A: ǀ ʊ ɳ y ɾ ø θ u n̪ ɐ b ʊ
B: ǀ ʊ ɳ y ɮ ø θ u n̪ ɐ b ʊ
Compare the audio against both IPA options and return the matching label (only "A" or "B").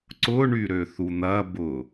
A